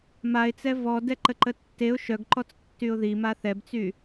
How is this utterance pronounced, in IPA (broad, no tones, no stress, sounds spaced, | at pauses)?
m a ɪ̯ t͡s ɛ v ɔ d ɛ ǃ ə ǃ ə tː e ʊ̯ ʃ œ ɡ ǃ ɔ t͡s tː y ʊ̯ ð i m a θ ɛ b t͡s y